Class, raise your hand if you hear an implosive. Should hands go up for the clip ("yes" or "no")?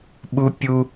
yes